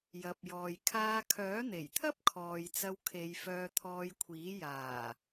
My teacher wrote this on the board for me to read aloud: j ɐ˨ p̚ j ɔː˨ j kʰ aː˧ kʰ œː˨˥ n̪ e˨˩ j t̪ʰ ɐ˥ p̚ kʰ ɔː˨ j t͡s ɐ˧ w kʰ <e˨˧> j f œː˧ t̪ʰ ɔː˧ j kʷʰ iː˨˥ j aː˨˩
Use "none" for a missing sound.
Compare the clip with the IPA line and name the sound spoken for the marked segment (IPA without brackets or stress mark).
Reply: e˨˧